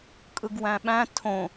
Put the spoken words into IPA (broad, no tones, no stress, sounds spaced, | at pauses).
kʼ ɯ ɡ w æ̃ ɓ æ̃ tʰ õ